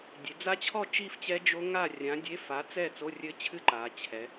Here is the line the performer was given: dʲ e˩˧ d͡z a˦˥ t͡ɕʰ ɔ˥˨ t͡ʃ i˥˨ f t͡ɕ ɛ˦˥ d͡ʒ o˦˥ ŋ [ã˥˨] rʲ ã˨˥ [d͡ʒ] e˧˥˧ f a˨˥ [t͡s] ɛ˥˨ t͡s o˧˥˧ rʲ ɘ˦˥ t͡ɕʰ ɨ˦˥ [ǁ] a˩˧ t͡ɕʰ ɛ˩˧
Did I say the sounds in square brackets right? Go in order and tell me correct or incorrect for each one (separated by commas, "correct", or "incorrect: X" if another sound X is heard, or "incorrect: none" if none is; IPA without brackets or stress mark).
incorrect: a˥˨, incorrect: dʲ, correct, incorrect: ǃ